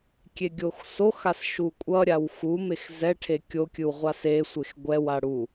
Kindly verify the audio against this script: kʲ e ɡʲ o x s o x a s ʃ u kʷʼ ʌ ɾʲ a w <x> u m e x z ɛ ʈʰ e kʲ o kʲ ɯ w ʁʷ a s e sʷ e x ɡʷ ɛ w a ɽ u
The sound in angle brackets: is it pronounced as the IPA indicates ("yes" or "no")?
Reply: yes